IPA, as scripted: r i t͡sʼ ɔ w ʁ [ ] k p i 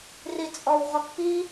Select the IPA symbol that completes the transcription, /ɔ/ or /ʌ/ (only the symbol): ɔ